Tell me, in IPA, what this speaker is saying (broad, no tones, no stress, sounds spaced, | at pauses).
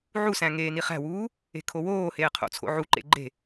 ʕ u s æ̃ ŋ eː n i χ æ̤ w uː | e̤ kʰ o w oː h eː qʰ o̰ t͡sʰ o̰ ʕ u ǃ ḛ ɡ͡ǃ e̤